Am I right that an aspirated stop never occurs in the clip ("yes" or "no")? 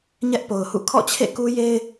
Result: no